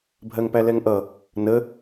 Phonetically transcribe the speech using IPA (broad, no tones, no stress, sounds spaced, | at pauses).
bʱ ɜ ŋ p æ l ɛ ŋ ʔ ʌ | n ə